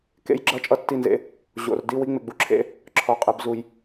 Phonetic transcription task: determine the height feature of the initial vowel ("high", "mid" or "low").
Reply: mid